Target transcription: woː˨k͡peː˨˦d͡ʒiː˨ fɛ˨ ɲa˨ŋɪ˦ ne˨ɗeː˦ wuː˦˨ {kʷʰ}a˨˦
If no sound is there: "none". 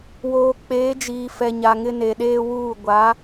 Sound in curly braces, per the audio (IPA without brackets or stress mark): ɡʷ